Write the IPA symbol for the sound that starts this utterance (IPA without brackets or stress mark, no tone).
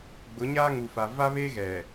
ɡ͡b